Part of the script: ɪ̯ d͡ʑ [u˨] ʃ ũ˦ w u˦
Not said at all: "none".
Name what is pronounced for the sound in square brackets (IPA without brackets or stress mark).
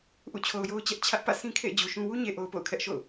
u˨